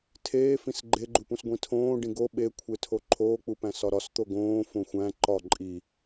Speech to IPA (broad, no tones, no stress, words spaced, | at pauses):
tʰeːfĩs ɡ͡ǃeɡ͡ǃupũs ɡʷĩtʰõː ɖĩɡo ɓekʷʰe tʰoǃʰoːk͡pupæ̃ sɒɾɒs t̪oɡõː fõxʷæ̃ ǃɒ ǃʼi